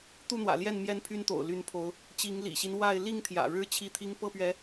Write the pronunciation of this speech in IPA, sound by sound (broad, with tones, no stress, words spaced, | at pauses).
t̪u˥˨n̪wä̰˨˩ljɛ˥˨nmjɛ˦n pʰy˦nt̪o̰˨˩ʊ̯ ly˨˦npʰo˨˦ʊ̯ | t͡ɕi˨˦ŋlḭ˨˩ɕi˦n wa˥˨ɪ̯ li˥˨ŋt̪ʰjä̰˨˩ɻɻ̩˦ t͡ɕʰi˦t̪ʰi˦ŋ pɤ˥˨pɥɛ˨˦